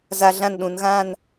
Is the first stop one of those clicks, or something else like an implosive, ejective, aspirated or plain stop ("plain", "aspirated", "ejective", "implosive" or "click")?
implosive